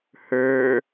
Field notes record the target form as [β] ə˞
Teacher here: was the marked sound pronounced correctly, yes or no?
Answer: no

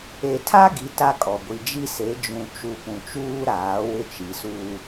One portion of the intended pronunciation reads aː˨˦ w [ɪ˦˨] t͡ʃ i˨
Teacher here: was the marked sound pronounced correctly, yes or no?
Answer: no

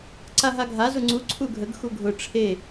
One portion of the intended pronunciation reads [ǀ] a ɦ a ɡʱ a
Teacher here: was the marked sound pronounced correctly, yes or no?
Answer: yes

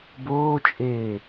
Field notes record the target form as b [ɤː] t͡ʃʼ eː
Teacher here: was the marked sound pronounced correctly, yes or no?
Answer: no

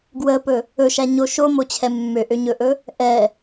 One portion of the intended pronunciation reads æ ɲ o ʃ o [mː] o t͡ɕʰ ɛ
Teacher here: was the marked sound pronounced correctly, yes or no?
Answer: no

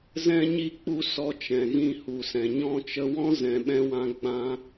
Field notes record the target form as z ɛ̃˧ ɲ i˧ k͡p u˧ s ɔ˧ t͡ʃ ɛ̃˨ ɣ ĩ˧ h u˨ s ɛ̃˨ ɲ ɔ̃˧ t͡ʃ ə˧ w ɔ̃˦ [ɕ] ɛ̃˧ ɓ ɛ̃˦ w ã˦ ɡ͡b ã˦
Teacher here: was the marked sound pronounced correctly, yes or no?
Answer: no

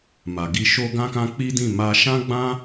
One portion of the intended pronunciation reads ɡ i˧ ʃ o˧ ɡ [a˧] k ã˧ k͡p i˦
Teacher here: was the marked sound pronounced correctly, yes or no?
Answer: no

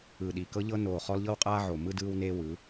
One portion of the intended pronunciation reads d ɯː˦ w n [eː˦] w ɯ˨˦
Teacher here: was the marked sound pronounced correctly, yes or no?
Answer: yes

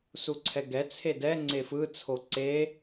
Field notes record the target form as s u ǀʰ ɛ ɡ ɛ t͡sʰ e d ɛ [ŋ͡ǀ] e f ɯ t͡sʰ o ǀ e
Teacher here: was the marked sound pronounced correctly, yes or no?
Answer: yes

